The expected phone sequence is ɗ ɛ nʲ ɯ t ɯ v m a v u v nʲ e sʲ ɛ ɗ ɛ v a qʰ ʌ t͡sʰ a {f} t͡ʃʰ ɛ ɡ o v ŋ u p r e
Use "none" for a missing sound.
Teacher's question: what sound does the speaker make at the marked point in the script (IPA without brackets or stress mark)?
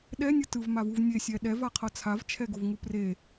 v